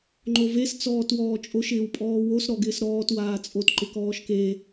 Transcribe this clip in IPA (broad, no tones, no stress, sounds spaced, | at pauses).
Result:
ŋ͡ǃ o v e s t͡s ɔː t w ɔː t͡ʃʼ o ʃ ɪː w pʼ ɔː w o s ɾ ɔ ɡ ɪː s ɾ ɔː t w aː t͡sʼ o t ǃ ɪ k ɔː ʃ k e